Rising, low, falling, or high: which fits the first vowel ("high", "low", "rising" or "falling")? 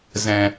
low